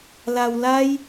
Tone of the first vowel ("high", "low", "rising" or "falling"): low